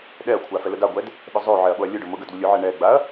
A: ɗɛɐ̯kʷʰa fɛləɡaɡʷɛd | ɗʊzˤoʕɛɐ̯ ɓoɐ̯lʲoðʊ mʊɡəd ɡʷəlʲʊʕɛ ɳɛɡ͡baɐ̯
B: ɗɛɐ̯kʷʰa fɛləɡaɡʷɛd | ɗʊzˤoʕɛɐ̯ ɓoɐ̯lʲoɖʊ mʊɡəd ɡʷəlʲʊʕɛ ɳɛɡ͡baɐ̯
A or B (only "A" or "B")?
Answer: B